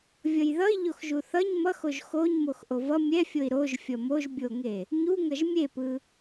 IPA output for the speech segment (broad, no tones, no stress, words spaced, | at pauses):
vʲʌjðʌi̯ ʎoxʒuθʌɲ mʌxoʒ xoɲmox ʔovʌ mʲɛfʲoi̯ ɾoʒfʲʌ moʒbʲoŋe | ɲuŋʌʒ mʲepɯ